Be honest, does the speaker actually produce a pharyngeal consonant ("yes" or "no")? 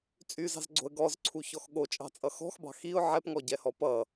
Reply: yes